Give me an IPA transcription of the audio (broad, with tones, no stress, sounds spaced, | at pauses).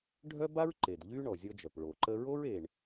ɖʱ œ˥ b a˥ ɹ ǃ e˩ d ʎ y˥ ɳ ɔ˩ zʲ ɔ˧ d͡ʒ œ˩ p ɭ o˩ ǃ ə˧ ɹ o˥ ɹ e˩ ɳ